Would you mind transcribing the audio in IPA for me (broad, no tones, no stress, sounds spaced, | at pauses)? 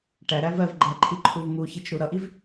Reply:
ʈ æ ɾ æ v ɜ v ɡ͡ǃ æ ǃʰ i ǃʰ u v m u ç i t͡ʃ ɾ u ɾ ʌ ʔ i v